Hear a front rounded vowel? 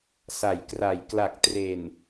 no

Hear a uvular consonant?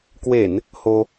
no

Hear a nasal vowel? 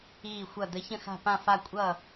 yes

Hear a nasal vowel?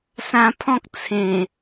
yes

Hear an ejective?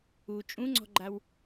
yes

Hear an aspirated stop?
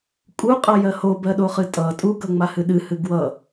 no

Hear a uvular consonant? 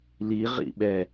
yes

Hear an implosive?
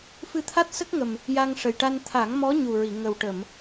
no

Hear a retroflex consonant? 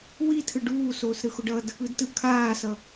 yes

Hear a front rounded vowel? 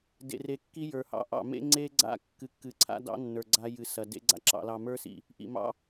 no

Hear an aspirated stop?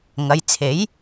yes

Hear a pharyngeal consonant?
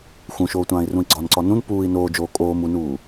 no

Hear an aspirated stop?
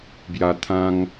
yes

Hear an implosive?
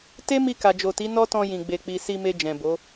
no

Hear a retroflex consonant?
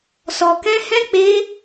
no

